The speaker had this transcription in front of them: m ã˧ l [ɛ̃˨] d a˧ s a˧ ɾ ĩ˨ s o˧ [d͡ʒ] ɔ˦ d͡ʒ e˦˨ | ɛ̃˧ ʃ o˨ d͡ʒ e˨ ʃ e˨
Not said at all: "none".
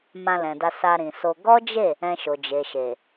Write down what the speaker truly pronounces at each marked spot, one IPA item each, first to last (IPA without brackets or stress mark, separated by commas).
ɛ̃˨, ɡ